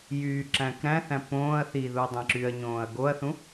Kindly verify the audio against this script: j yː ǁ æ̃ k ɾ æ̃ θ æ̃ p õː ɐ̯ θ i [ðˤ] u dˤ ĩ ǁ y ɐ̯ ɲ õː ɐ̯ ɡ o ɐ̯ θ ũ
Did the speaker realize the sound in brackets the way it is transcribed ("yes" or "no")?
no